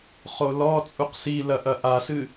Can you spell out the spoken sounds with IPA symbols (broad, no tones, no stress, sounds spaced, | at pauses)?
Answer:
χ o l ɔ t͡sʼ u q s i l ɐ ʔ ɐ ʔ a s ɨ